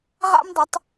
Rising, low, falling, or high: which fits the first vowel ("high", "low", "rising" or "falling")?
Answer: high